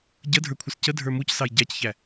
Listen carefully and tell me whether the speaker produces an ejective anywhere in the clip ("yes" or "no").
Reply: no